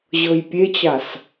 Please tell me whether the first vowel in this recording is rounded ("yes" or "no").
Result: no